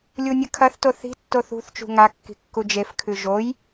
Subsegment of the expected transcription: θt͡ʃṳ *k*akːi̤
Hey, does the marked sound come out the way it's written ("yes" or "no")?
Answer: no